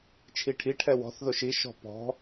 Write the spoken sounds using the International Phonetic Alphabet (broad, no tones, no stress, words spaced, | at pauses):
t͡ʃʰiʈʰi ʈʰɛwɔ̤θ ðoʃi ʃɔ̤pɔ̤